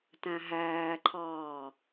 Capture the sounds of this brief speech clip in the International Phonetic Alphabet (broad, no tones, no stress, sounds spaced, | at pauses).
t æ̃ ɦ æː ǃʰ ɑː